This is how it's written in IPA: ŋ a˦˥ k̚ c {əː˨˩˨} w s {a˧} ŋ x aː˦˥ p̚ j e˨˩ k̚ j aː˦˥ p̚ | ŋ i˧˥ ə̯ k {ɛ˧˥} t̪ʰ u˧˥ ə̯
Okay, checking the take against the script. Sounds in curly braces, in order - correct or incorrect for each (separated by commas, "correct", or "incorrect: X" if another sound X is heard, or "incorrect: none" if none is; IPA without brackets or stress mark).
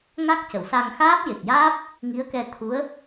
incorrect: ə˨˩˨, correct, incorrect: ɛ˧